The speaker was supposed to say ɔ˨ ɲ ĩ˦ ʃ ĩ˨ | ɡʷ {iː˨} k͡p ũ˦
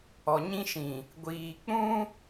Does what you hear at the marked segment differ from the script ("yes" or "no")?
no